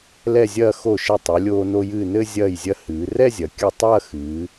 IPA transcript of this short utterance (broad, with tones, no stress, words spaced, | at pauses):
lɛ˥˧zʲɐː˥˧ xo˧˩ʃɘ˧˩ tˤɨ˩˧ lʲoː˧no˧jɨː˧˩nɘ˥˧ zʲɐː˧˩jzʲɐ˧ hɨː˩˧ rɛ˥˧zʲɐ˩˧ kʲɨ˧˩ tˤɐː˥˧xɨː˩˧